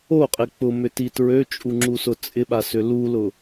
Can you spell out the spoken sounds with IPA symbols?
o qʼ ɪ k͡p ʊ m ʏ t i t ɹ ø t͡ʃʼ u ŋ͡ǁ u s ʊ t͡sʼ ɪ ɓ a s ʏ l u l ʊ

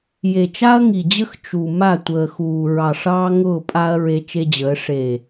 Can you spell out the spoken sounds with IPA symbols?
j e˨ t͡ʃ a˦ ɐ̯ ŋ i˨ d͡ʑ ə˦ x t͡ʃ u˨ m a˦˨ tʷ əː˨ x uː˨ ɹ ɑ˨ ʂ ɑː˦ ŋ ʊː˦˨ pʼ a˦ ɐ̯ ɹ e˦ t͡ʃ e˦ d͡ʑ əː˨˦ ʂ eː˨

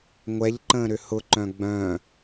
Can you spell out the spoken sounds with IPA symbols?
ŋʷ ɛ ʎ ǃ ə̃ː ɾ ʏ h ʊ ǃ œ̃ ɡ͡b œ̃

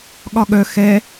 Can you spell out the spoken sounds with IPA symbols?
ɠ ɒ ɠ œ x ɛ

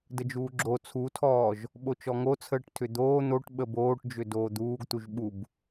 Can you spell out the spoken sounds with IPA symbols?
d ə d͡ʒ uː ɡ͡ǁ o t͡sʰ u tʰ ɔː ʒ | ɓ o t͡ʃ ɔ ŋ o t͡sʰ əː ʈ tʰ ʏ d̪ oː n̪ o ʈ ɓ ə b oː ʈ d͡ʒ ʏ d oː d̪ uː ɡ t̪ u ʒ ɓ u b

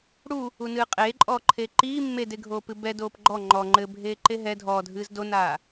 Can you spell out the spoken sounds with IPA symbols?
ɽ u | u n ɨː qʼ eː ǃʼ ɔː ǃʰ eː ǃ iː mː e d e ɡʱ oː p ɨ b ɛ d oː p ɡ͡ǃ ɔ ŋ͡ǃ ɔ ŋ͡ǃ ɘ bʱ eː ǃ e ɦ ɛ dʱ ɔː dʱ ɨː z d o n aː

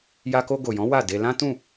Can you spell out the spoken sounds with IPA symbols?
j a˧ k o˧ ɡ o˨ j ɔ̃˨˦ w a˦˨ d e˧ l ã˦ t ũ˦˨

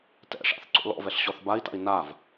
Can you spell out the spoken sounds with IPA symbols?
t ɛ̰ ʂ a̰ θ ǀ o̰ l ɔ̰ v ɛ ɬ ɕ ɔ θ b a i̯ t a̰ i̯ n a v

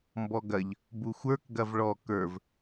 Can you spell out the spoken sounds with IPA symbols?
m b ɔ ɡ ɐ ʎ | b u xʷ ə˞ k ɡ ɐ v ɭ ɔ k ə˞ v

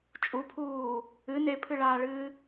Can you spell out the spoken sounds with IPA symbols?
t͡ʃʼ u pʰ uː | ɨ n e pʰ ɨ ɭ aː ɭ ɨː

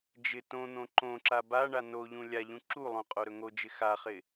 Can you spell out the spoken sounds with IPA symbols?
d͡ʒ ɪ t õ n̪ õ ǃ õ ǁ a b a ɳ a n o ʎ ũ lʲ a ʎ ũ ǁ u lˠ õ qʼ o ɾ ɵ ŋ o d͡ʒ ɪ x a χ ɪ

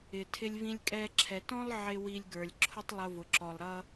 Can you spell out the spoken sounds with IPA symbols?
ɪ˩ tʰ ɪ˧ lʲ v ĩ˧ lʲ kʼ ɛ˧ ǁʰ ɛ˩ t ɔ̃˥ lˠ ʕ ɪ˧ w i˧ lʲ ɡ ə˞˩ lʲ ǁʰ ʊ˥ tˤ lˠ ʊ˧ v ʊ˩ ǁ ɔ˩ lˠ ɾ ʌ˧

